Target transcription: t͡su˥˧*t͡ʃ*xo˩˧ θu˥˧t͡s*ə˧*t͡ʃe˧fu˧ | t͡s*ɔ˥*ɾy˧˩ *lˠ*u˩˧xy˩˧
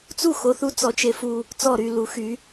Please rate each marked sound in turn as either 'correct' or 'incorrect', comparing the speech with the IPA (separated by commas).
incorrect, incorrect, incorrect, incorrect